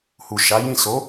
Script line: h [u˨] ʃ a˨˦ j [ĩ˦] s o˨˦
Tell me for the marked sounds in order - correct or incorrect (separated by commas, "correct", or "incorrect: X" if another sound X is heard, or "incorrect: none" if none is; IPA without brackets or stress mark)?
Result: correct, incorrect: ĩ˦˨